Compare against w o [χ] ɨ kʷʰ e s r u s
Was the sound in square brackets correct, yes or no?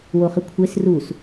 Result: yes